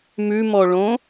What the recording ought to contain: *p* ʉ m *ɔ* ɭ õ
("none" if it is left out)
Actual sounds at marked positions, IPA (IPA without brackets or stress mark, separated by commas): m, ɔ